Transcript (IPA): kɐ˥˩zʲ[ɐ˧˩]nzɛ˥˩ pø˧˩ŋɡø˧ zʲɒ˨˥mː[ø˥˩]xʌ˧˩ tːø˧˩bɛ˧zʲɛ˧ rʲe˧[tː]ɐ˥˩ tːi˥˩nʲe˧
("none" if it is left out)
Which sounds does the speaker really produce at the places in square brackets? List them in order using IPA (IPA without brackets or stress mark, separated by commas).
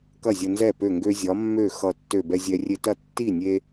ɐ˧, ø˥˩, t